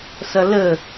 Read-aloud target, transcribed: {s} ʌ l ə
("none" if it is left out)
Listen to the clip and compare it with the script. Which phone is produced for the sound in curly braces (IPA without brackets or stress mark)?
s